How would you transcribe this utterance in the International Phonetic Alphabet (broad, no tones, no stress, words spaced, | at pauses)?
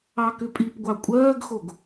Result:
ɑkʏpʼipɡʷɑ kʷʼɜːɡxoɡ